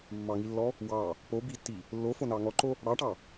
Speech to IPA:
mː ɑ ŋ i lː ɔ | w ɑ | p o b i tː i | lː o f o n ɑ ŋ ɔ ǃ o | ɽ ɑ ʈ ɑ

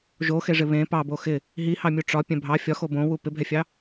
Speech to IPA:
ʒ o x e ʐ ɪ β ẽ p ɑ b o x ɪ | ɦ i h ɑ mʲ u ʈ͡ʂ ɒ pʲ ɛ̃ bʱ ɑ fʲ ɒ x o b õ w u p ɪ bʱ ɛ fʲ ɑ

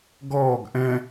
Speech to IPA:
ɡ ɔː ɡ ʔ ɛ̃

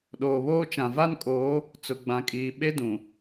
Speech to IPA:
ɗ oː˨ β oː˦ t͡ʃ ã˨ v a˦ n kʼ oː˨˦ | t͡s ʊ˨ ɡ͡b ã˨ kʼ iː˨ ɓ e˦ d ũ˨

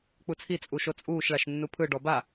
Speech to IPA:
k͡p u t͡sʰ i t͡sʼ u ʃ o t͡sʼ uː ʃ ɭ a ʃ nː u pʰ ɯ ɖ ɔ b a

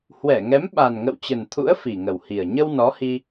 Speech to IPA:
h w ɛ˧˩ ŋ ɛ˨˦ m ɓ a˨˩ n ŋ ə̰˧˨ w t͡ɕ ə˨˩ n t̪ʰ ṵ˧˥ ə̯ f i˨˩ ŋ ə˨˩ w h i˨˩ ə̯ ɲ ə˧ w n ɔ˨˦ h i˧

